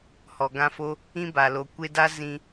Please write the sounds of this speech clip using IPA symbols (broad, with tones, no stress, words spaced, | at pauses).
hɔ˨ɡã˧fo˦ | ĩ˦ba˨ lo˨kʷe˧da˦ zĩ˧